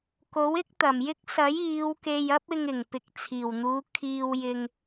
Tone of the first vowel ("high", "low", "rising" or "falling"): rising